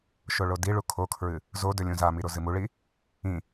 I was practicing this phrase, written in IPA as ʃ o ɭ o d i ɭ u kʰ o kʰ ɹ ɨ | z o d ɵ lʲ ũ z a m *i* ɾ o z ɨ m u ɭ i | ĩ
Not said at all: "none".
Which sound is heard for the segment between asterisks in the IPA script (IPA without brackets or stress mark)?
i